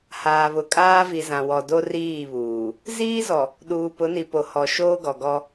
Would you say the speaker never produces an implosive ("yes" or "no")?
no